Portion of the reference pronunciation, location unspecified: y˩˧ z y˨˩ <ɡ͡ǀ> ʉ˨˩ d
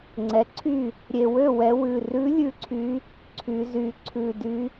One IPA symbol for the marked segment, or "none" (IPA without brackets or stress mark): ǀʰ